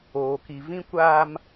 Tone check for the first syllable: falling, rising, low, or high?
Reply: low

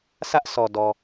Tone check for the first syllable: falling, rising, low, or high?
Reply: high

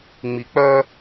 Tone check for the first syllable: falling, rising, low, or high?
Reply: low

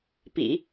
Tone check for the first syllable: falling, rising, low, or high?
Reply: low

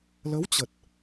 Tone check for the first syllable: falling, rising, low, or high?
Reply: rising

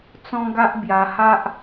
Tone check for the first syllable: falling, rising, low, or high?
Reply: high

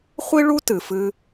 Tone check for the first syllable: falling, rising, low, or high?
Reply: high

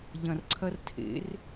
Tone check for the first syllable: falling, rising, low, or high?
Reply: low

